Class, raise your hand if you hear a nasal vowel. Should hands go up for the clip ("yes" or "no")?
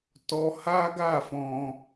yes